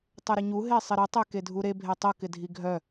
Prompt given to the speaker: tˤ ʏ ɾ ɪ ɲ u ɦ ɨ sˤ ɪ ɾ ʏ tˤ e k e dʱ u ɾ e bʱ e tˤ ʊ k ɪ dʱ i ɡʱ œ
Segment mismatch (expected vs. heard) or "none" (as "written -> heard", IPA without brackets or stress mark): ɨ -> e